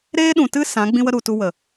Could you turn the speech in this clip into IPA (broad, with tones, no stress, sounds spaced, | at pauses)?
ɾ eː˦ ɗ ũ˨ t ɨ˦ s ã˨˦ ɡ͡b ĩ˦ w ə˦ ɾ u˨ t u˧ w ə˨